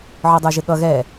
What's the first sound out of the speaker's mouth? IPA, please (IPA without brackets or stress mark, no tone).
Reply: ʕ